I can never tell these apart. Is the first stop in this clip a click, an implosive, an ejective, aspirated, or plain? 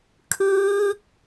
aspirated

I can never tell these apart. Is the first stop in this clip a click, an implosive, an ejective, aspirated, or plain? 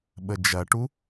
implosive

